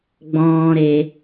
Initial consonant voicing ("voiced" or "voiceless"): voiced